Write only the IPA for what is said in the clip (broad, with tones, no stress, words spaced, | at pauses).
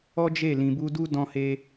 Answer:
ɔ˦d͡ʒe˦˨ lĩ˨bu˧du˦ dɔ̃˧he˧